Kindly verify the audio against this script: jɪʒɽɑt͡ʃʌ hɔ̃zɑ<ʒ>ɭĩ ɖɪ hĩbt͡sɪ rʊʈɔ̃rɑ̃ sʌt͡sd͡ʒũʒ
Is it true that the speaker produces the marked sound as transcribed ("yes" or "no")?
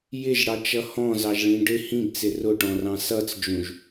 yes